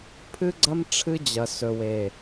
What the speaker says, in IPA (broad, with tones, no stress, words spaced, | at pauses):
pʰɨ˦ɡ͡ǀɐ˦m ʈ͡ʂʰɨ˦d͡ʑɐ˨ sɵ˨we˨